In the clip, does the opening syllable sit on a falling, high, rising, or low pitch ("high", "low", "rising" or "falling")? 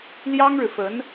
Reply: high